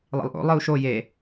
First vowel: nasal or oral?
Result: oral